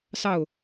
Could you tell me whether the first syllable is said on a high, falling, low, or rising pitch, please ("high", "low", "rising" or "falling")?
falling